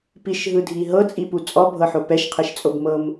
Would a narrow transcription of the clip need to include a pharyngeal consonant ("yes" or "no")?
yes